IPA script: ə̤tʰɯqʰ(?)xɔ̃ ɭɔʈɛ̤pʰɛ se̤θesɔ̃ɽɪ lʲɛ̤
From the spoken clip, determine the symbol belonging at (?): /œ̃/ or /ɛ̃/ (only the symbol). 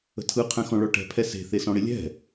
ɛ̃